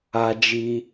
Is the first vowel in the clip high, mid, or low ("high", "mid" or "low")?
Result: low